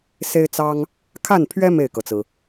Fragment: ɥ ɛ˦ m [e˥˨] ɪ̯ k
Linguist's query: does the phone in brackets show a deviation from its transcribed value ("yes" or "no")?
no